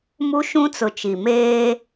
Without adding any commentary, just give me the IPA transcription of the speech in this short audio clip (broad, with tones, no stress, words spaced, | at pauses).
mu˦ʃũ˦t͡sʊ˨t͡ʃi˨ meː˦